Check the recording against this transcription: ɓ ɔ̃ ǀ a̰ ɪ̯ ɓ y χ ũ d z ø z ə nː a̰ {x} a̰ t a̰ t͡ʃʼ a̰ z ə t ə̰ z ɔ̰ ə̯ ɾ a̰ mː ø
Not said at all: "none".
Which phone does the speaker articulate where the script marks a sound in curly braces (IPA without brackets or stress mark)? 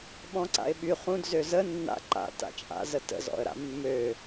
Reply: ǃ